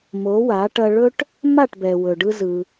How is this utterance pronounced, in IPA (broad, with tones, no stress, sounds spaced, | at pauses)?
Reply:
m o˨˦ w a˨˦ ʈ ɐ˧ ɭ ɵ˦ ʈ | m a˦˨ ʈ b ɛ˨ w ɵ˨ ɖ ɯ˧ z ɯ˧